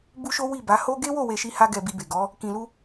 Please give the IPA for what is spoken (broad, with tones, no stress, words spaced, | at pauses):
bu˦ʃo˦ wi˦˨ba˨˦ ho˦ ɡe˦wo˦˨ we˧ʃi˦ha˦ ɡɛ˧bi˧be˨ ɡɔ˨˦ | kĩ˨lu˧